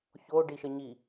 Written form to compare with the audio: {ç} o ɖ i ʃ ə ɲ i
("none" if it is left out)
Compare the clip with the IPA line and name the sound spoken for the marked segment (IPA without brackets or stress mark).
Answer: ç